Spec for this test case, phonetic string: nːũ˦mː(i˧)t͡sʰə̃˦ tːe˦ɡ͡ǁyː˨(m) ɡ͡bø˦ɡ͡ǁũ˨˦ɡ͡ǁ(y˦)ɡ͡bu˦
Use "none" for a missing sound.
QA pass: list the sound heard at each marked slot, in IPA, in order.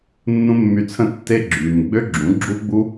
y˧, m, u˦

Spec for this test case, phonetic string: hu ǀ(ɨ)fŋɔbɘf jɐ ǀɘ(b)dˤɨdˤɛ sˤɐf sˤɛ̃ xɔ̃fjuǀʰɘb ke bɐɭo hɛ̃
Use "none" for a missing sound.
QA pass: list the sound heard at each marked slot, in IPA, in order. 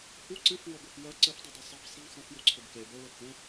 ɨ, f

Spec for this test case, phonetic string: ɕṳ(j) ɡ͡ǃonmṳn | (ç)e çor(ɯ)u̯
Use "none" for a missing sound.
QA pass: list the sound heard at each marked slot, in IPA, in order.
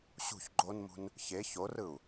ç, ç, ɯ

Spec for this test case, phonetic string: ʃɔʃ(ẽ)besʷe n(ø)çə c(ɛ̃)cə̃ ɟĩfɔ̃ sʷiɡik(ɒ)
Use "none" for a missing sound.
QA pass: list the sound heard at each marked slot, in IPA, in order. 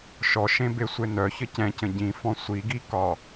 ẽ, œ, ɛ̃, ɒ

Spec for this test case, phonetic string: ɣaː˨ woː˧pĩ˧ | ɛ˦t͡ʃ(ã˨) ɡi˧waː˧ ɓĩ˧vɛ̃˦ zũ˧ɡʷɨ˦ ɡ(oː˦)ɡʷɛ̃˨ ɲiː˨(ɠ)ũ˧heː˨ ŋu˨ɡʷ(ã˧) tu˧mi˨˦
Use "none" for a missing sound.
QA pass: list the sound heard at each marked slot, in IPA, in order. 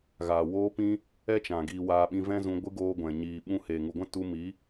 ã˨, oː˦, ɓ, ã˦

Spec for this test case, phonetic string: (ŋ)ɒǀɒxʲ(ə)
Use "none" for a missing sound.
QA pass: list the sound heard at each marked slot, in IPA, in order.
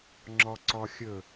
ŋ͡ǁ, ə

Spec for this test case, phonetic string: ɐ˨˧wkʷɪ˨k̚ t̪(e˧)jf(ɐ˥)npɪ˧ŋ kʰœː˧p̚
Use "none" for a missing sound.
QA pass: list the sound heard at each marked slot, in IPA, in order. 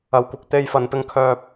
e˧, ɐ˨

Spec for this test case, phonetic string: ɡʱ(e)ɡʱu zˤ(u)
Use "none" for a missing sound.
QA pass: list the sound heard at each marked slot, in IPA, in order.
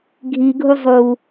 i, u

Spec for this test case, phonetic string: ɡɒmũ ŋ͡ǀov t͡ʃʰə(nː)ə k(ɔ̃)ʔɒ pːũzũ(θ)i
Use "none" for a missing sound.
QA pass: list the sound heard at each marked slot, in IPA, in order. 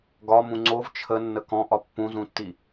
nː, ɔ̃, tː

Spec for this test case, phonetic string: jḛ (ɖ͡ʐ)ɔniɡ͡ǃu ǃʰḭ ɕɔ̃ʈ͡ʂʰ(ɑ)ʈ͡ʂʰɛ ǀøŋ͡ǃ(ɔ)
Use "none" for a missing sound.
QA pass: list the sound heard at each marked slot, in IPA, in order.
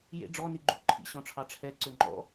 ɖ͡ʐ, ɑ, ɔ̰

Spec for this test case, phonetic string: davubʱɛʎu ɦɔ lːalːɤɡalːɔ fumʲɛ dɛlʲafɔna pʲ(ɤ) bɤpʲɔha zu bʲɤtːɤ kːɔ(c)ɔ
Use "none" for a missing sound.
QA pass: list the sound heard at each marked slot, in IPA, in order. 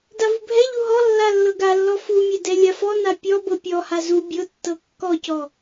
ɔ, c

